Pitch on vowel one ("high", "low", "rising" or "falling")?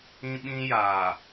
high